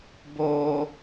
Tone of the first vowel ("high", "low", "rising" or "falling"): high